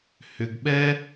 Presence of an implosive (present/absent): present